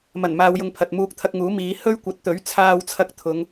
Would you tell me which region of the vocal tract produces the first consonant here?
lips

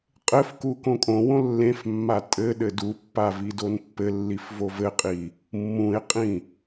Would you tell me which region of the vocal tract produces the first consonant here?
uvula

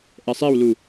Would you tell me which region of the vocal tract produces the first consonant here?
throat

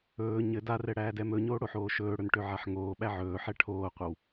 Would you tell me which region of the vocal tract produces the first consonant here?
palate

